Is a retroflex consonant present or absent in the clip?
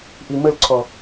absent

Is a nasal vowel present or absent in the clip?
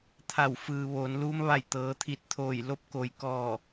absent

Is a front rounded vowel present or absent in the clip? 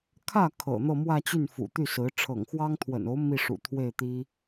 present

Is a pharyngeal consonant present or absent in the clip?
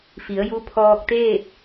absent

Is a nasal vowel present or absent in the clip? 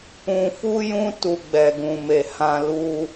present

